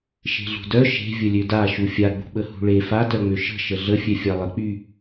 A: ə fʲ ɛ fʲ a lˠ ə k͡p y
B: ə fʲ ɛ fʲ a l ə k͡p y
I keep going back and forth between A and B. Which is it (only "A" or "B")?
A